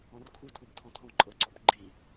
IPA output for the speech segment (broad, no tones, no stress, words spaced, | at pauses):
ɔ̃rkʰu tʰubtʰɔ̃tʰɔ̃ ǃʼɤǀɔbɡ͡ǃi